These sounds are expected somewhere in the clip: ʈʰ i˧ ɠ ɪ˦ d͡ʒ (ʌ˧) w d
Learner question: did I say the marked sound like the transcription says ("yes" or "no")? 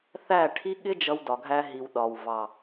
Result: yes